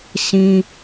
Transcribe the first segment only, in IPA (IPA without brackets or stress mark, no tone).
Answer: s